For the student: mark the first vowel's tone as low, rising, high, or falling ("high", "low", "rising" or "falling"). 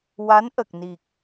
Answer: rising